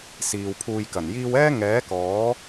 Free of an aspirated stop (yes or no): no